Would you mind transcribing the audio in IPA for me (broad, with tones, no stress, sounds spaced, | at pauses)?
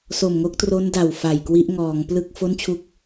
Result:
s o˨˩ m ŋ o˦˥ k̚ t r o˦˥ n d a˨˩ w f a˨˩ j k w i˦˥ ʔ ŋ ɔː˩˦ ŋ p l ɯ˥˩ k̚ f o˥˩ n t͡ɕʰ u˦˥ k̚